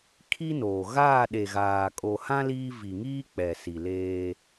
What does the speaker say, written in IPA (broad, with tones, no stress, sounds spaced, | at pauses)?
kʰ i˦ n oː˨ ɣ aː˦˨ ɗ e˨ ɣ aː˨ kʼ o˨ h ã˦ l iː˦ v i˨ ŋ iː˦ k͡p ɛ˨ s i˨ l eː˦